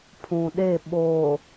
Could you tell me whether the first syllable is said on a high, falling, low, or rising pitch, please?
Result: low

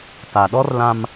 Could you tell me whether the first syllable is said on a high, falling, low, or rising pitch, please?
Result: low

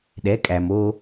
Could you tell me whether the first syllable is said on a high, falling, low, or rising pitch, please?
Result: rising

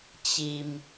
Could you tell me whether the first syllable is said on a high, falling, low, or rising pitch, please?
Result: low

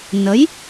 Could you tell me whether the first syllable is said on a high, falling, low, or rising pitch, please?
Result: rising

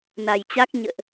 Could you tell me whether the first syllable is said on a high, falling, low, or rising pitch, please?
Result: low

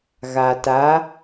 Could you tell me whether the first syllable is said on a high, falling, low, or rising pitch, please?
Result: low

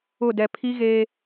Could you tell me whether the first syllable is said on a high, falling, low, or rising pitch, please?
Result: falling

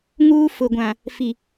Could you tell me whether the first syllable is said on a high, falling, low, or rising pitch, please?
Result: high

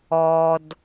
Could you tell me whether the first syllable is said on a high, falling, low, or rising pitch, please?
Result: low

